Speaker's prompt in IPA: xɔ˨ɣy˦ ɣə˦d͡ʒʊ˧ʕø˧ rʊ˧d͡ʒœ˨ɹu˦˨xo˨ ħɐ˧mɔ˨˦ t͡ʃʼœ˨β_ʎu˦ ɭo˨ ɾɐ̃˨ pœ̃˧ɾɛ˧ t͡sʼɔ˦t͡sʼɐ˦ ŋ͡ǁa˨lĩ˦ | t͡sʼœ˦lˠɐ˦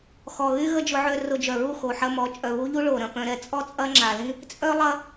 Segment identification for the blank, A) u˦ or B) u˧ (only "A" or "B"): A